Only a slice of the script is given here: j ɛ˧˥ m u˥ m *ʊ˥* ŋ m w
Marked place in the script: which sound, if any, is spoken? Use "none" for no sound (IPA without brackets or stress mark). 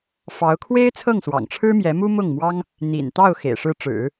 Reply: ʊ˥˩